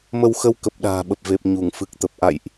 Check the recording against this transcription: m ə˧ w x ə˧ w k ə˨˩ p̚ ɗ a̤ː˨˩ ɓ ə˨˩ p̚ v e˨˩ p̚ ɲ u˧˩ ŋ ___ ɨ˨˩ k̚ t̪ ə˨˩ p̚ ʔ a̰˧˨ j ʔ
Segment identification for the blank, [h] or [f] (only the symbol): f